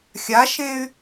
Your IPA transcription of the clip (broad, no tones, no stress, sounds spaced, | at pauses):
xʲ a ʃ ẽ y̯